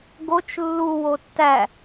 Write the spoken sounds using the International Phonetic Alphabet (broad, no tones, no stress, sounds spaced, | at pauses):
ɡ o t͡ʃ lː u w o tː æ